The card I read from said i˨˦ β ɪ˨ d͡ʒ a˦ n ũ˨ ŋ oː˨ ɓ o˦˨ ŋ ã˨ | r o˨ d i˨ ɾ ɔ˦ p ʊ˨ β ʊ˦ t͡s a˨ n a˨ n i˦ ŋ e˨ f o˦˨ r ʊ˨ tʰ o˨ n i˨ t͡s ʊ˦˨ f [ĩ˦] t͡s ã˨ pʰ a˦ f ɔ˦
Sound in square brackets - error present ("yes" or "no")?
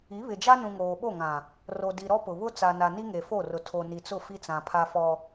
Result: yes